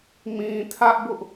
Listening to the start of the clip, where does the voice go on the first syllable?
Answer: low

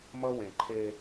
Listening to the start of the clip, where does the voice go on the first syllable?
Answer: high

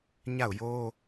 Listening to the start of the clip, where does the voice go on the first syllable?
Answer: falling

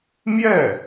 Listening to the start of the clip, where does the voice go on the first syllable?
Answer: falling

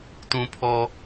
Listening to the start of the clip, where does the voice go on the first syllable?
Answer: low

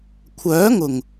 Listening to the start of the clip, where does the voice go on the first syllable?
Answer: rising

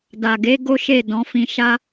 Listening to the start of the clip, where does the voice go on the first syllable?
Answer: low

